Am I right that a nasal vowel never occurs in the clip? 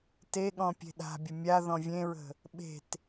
no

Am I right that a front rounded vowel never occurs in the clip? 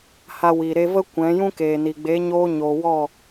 yes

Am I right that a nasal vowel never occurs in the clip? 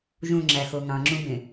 no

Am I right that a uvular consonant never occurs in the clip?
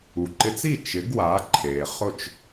no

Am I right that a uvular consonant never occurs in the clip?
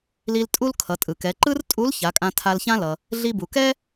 yes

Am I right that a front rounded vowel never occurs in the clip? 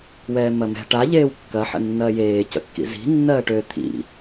no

